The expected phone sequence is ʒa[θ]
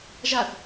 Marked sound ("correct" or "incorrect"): correct